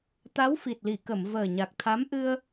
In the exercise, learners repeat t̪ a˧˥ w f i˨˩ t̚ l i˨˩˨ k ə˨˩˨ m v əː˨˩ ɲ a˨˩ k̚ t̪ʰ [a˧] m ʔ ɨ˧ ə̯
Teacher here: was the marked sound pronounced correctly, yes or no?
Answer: no